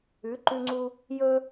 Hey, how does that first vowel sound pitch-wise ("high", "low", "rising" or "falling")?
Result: rising